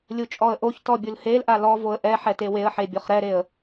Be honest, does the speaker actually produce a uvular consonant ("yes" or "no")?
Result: yes